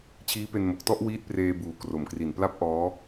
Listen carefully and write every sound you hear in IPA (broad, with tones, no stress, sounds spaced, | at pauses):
t͡ɕʰ iː˦˥ p e˧ n m o˨˩ k̚ t ɔ˥˩ ʔ w iː˦˥ t̚ p r eː˧ b uː˨˩ k r o˨˩ m k r i˨˩ n p l a˦˥ p̚ ʔ ɔː˦˥